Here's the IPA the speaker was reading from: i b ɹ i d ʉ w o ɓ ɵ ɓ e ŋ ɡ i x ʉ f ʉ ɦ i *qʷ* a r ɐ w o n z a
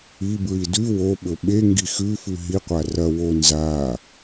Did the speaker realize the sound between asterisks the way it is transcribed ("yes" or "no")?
yes